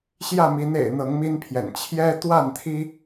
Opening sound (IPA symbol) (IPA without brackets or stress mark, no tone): ɕ